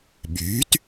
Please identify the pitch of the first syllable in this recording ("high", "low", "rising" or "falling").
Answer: rising